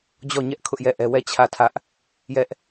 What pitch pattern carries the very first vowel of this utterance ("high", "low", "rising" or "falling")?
falling